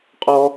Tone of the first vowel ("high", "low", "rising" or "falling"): high